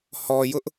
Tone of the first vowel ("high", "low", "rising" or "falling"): low